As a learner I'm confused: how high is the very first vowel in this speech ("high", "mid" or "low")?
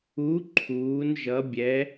high